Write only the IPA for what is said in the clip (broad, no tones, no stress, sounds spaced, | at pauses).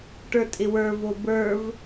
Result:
ʈ ə˞ tʼ ɪ w ə˞ v o b ə˞ v